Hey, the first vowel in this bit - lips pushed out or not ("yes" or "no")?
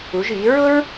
yes